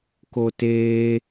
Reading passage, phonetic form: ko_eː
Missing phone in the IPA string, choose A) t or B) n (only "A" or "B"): A